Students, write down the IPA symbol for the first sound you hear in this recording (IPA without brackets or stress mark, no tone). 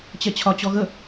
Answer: t͡ɕ